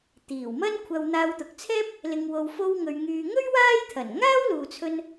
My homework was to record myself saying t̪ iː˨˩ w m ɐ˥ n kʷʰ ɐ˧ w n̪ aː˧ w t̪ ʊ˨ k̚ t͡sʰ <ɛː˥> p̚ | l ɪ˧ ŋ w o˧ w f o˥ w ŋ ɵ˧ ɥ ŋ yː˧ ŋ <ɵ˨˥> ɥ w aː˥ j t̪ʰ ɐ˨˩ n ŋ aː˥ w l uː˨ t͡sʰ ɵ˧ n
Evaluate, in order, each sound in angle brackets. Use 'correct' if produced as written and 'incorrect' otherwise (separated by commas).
correct, incorrect